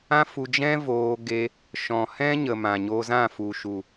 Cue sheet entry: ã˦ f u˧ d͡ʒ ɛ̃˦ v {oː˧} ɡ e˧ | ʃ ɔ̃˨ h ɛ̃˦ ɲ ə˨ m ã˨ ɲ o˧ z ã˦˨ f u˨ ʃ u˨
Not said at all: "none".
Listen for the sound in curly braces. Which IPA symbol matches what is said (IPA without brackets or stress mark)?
oː˧